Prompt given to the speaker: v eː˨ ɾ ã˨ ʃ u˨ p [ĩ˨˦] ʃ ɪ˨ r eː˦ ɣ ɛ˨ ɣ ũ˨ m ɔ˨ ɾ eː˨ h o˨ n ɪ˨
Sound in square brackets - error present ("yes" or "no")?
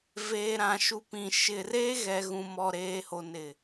yes